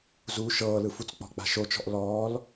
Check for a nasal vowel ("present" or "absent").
absent